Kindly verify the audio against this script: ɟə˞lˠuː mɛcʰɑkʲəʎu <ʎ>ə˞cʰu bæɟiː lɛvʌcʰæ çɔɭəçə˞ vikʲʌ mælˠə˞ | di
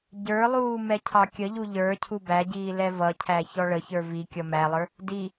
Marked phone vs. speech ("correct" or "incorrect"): correct